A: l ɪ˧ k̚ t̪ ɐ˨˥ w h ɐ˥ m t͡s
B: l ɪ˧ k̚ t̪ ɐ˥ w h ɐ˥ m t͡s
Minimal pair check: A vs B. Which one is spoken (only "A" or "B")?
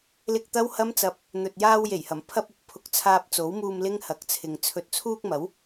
B